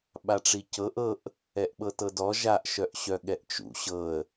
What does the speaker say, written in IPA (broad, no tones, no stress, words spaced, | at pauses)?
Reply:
ɓaʈ͡ʂicɤʔ ɤʔ | ɛʔɓɤtɤdɔ ʒaʔ ʃœʔɕœɠɛʔt͡ʃṵ ɕɤə̯